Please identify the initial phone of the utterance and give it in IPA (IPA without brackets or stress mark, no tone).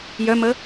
j